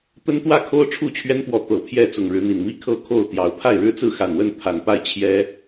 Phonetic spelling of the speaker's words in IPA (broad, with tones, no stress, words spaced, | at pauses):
t̪ə˦nt̪wä˥˨kʰo˦ʊ̯ ʈ͡ʂʰu˥˨t͡ɕʰɥɛ˦npwɔ˨˦ t̪ɤ˨˩ pʰjɛ˥˨t͡sʊ˨˩ŋɻɻ̩˨˦n̪i˨˩n mi˦ kʰɤ˥˨kʰo˥˨ʊ̯t̪jɑ˨˦ʊ̯ pʰa˥˨ɪ̯ɻɻ̩˦t͡sɹ̩˥˨ xa˨˩nwə˥˨n pʰa˨˩npa˥˨ɪ̯ t͡ɕʰjɛ˦